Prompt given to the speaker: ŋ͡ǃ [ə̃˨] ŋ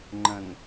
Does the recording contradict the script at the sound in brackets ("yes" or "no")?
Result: no